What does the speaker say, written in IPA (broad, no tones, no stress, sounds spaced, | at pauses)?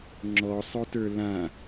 ŋ͡ǁ ɔ sˤ o t ə˞ l ã